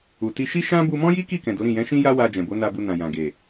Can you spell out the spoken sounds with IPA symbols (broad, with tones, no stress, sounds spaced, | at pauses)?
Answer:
u˨ t i˧ ʃ i˦ ʃ ã˦ b u˧ m ɔ̃˦ j i˦ k i˦˨ k ɛ̃˨ d o˨˦ ɾ ĩ˦˨ j ɛ̃˨˦ ʃ ĩ˦ j a˦ w a˧ d͡ʒ ɛ̃˨ b o˨˦ n a˧ b u˧ n ã˨ j ã˨ ɡ e˨